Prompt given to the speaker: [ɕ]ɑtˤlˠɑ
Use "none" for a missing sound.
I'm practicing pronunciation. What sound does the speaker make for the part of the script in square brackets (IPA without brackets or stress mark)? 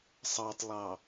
sˤ